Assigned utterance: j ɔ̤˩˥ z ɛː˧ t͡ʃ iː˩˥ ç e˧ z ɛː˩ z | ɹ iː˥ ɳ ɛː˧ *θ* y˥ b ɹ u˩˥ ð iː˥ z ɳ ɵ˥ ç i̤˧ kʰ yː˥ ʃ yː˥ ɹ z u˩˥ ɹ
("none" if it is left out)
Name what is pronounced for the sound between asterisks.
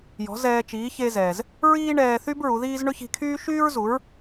θ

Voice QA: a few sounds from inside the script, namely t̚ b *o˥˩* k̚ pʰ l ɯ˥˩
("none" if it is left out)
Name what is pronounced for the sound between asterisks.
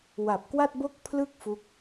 o˥˩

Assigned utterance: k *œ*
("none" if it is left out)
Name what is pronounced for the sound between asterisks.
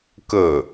ə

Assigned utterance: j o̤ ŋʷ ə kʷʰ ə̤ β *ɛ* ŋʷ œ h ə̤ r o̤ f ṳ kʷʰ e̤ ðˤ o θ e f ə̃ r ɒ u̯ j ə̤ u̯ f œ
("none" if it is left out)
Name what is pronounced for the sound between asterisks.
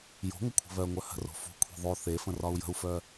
œ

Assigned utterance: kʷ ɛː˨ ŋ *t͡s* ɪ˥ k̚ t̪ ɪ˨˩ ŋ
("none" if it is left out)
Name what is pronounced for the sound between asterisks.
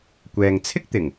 t͡sʰ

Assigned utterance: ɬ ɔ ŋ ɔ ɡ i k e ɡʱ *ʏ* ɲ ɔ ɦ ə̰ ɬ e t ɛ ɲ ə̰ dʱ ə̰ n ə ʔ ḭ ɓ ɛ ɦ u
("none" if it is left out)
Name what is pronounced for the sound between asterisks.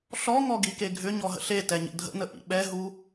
ʏ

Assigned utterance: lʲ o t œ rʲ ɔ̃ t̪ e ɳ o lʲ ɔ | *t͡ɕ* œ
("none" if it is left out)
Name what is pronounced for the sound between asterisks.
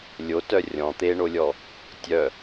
tʲ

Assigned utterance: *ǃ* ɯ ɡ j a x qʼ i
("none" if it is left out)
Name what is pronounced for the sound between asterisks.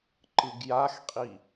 ǃ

